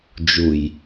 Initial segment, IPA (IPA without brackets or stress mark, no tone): d͡ʒ